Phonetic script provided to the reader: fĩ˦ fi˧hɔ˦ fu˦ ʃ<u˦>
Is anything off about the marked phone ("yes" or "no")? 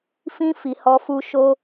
yes